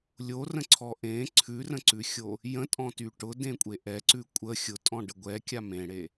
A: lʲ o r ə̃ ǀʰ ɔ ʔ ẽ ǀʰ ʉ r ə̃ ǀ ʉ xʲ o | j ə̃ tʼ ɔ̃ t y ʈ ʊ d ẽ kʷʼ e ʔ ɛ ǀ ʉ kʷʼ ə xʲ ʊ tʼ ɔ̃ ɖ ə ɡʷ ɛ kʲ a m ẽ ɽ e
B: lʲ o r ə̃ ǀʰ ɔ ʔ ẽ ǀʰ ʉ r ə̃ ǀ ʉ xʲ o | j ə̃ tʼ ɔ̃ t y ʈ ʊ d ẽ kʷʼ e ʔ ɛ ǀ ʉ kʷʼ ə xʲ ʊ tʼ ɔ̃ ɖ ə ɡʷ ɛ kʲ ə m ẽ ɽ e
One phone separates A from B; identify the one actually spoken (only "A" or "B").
A